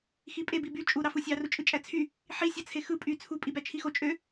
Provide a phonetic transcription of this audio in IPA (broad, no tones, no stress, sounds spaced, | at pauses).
x i pʼ e b i b y t͡ʃʼ u ɾ ɑ f ɯ sʲ ɑ r u t͡ʃʼ ɯ t͡ʃʼ æ t͡sʰ y | ħ i sʲ ɑ t͡sʰ e x ɯ pʼ y t͡sʰ u pʼ i b æ t͡ʃʰ i x o t͡ʃʼ ø